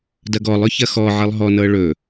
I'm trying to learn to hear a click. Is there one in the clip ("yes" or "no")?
no